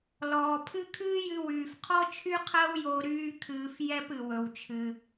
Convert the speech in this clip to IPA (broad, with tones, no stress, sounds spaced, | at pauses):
l ɔː˩ pʰ ɨ˥ kʰ ɨː˥ j ɨ˧ w yː˩ f qʰ ɔ˥ t͡ʃʰ y˥ qʰ ɜ˥ w j o˧ ɾ yː˥ kʰ ɨː˧ f j ɛ˥ p ɨ˩ w ɵ˩ w t͡ʃʰ ɨ˩